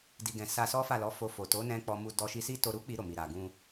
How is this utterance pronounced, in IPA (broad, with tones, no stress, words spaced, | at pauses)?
di˨ɡɛ̃˨ sa˧sɔ˦ fa˦˨lɔ˨˦fo˧fo˨ to˨˦nɛ̃˧ k͡pɔ˧mu˧ dɔ˧ʃi˧si˦ to˧ɾu˦k͡pi˧ ɾo˨mi˨ ɾa˨ ɡũ˧